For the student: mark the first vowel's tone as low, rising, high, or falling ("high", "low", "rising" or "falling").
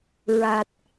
low